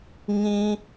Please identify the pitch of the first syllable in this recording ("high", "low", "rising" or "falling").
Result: high